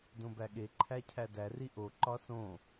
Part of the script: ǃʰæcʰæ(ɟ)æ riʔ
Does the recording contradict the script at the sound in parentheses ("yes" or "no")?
yes